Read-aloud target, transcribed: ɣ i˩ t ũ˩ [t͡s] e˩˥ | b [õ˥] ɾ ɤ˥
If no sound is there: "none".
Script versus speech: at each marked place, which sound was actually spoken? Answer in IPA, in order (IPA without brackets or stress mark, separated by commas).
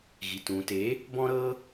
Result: t, ɔ̃˥